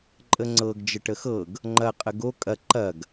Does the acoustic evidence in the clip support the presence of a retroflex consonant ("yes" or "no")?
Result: yes